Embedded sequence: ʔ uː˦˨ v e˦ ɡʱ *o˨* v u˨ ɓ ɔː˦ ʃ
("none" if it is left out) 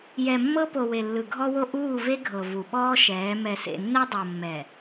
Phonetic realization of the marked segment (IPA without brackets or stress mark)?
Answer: ɤ˨